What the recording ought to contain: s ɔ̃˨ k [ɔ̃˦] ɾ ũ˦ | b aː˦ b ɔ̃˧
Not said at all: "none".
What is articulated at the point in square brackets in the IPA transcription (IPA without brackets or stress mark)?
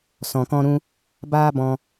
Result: ɔ̃˦